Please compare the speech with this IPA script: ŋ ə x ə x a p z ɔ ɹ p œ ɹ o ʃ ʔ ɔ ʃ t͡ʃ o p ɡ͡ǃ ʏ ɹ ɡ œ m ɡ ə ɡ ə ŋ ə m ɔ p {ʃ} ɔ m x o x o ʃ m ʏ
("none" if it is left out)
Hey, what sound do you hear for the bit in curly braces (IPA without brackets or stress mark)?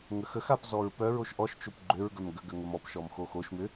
ʃ